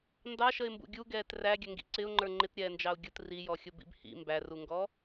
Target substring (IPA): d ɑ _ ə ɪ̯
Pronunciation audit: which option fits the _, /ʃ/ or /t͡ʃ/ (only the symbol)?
ʃ